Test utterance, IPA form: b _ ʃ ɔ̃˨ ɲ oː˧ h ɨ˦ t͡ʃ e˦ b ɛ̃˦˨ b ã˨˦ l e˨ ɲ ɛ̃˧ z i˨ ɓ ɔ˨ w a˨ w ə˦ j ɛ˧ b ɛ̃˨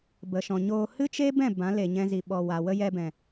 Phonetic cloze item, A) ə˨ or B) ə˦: A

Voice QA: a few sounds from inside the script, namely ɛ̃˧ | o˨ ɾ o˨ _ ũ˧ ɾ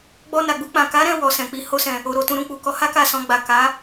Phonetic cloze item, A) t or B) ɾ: A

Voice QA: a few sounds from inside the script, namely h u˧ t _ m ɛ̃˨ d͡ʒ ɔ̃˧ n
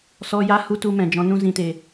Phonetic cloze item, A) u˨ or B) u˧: B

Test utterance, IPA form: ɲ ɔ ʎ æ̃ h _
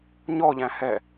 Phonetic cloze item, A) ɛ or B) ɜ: A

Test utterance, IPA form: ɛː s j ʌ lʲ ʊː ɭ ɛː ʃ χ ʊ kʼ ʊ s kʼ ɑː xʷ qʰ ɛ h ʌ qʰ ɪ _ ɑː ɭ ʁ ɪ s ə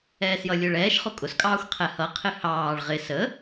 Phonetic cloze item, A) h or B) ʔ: A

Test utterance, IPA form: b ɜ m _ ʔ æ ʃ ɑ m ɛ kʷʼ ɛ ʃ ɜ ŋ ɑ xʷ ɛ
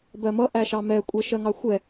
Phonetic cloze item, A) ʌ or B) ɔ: A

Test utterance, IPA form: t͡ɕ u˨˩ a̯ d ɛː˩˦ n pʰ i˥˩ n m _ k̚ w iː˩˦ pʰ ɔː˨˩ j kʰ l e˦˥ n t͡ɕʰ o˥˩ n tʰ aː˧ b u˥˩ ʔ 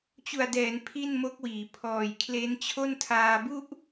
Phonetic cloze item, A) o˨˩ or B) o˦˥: B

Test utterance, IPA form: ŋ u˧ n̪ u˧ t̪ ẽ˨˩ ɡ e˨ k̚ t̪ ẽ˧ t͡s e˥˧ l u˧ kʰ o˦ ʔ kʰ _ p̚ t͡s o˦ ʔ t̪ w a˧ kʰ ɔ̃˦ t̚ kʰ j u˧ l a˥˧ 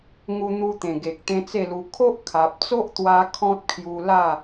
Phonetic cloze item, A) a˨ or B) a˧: A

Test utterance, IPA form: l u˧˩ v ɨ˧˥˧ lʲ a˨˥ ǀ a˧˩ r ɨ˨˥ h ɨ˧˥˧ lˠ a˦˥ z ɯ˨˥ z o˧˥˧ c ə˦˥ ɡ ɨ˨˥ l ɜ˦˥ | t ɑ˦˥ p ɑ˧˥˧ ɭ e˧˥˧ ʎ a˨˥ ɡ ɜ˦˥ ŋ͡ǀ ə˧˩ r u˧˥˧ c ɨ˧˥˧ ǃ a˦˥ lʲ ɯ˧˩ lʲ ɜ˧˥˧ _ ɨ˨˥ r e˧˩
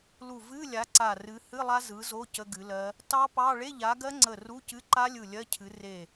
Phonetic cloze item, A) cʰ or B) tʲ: A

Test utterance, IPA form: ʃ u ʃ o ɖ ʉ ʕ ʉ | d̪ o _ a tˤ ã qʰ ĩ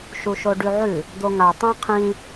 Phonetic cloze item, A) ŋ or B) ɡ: A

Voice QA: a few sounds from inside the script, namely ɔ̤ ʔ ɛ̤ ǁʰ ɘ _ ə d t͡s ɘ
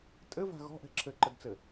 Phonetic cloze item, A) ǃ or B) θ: A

